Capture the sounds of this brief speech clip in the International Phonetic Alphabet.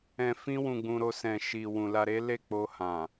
ɛ̃˧ f ĩ˦ w ũ˧ ɡ͡b ũ˧ ɾ o˧ s ɛ̃˨ ʃ i˨ w ũ˨ l a˧ ɾ e˦ l e˦˨ k͡p o˧ h ã˨

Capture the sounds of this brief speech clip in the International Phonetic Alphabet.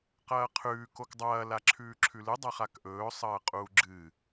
q ɐː qʰ ʉː k o k dˤ ɐː l a ǁʰ ʉː ǁʰ ʉ l ɨ dˤ a χ a k ʔ ɵː sˤ ɐː qʼ uː ɡ͡ǁ ɨ

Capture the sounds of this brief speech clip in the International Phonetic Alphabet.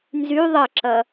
n z y ðˤ ɐ ǁ ɐ

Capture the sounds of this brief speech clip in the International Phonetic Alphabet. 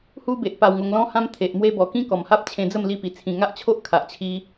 h u˦ b e˨ ʔ p a˧ w ŋ o˧ ŋ l ɔ̃˦ h ã˦ m t̪ʰ e˨ ʔ m w e˦ b ɔ˨˩ k ĩ˦ k ɔ˨˩ m h a˦ p̚ t͡ɕʰ ẽ˧ d͡z ə˥˧ m l i˧ p i˨˩ t͡sʰ ĩ˨˩ ŋ a˦ ʔ t͡ɕʰ o˦ ʔ kʰ a˨ ʔ t͡ɕʰ i˧

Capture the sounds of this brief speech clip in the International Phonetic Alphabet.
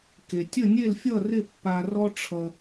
k e˩ tʲ ə˥˧ nʲ e˥˧ l fʲ ʌ˥˧ r ɪ˥˧ pː a˧ r ɔ˥ ʈ͡ʂʰ ʌ˧

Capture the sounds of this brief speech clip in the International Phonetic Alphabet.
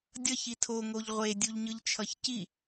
dʲ ʌ ç i tʰ o ŋ o ʎ ʁʷ e dʲ u ʎ ɲ ɯ ʎ t͡ʃʰ ʌ ç c i

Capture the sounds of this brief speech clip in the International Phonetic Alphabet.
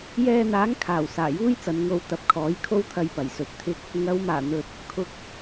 j ɛː˧ n̪ aː˨˥ ŋ kʰ aː˨˩ w s aː˨˩ j uː˥ j t͡s ɐ˨˧ n ŋ o˧ w t̪ ɐ˨˥ p̚ kʰ ɔː˨˥ j kʰ o˥ w t̪ʰ ɐ˧ j p ɐ˨˩ j s ɵ˨ t̚ t̪ʰ ɪ˥ k̚ | ŋ ɐ˨˧ w m aː˨˩ n̪ ɵ˨ t̚ | kʰ ʊ˨ k̚

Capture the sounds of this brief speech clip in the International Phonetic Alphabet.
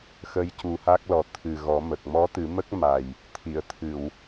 x ə˧ j c u˨˩˦ h a˦˥ k̚ l ɔ˨˩ t̪ʰ ɨ˨˩ ɣ ɔ˨˩˦ m ə˨˩ k̚ m ɔ˧˥ t̪ ɨ˨˩˦ m ə˦˥ k̚ m a˨˩ j | t̪ʰ i˨˩˨ ə̯ t̪ʰ ɨ˨˩˨ w

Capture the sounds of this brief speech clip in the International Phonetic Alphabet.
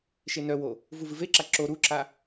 ʃ e n œ w o | v u v ɨ v e ǁ a ǁ o ɾ u ǁ a

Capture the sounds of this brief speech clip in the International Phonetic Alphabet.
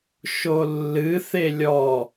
ʃ o lː ɨ θ e lʲ ɔ

